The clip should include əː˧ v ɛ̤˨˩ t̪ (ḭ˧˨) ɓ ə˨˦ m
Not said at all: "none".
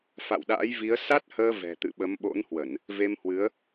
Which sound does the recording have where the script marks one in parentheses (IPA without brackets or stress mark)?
ɨ̰˧˨